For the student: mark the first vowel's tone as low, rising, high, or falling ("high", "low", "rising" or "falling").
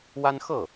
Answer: high